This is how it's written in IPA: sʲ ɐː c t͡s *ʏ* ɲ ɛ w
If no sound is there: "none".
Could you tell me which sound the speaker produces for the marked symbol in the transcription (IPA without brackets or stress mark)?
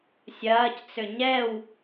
ʏ